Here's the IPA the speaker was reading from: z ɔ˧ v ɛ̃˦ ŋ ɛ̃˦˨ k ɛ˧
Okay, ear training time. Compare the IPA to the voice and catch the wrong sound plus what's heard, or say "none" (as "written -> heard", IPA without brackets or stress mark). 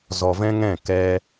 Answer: none